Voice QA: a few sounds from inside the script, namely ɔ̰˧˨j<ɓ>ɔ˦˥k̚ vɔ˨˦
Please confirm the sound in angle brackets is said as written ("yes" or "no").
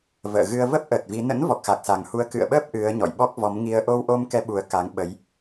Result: yes